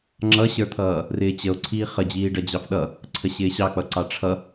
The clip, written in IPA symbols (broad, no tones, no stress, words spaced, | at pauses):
ŋ͡ǁʌɕə˞t̪ʰʌː | rɪːt͡ɕəo̯ ǀʰiːχə d͡ʑiːɖʌd͡ʑɑfɗʌ | ǀʰəɕɪːɕɑk͡pʌ ǀɑʈ͡ʂʰʌ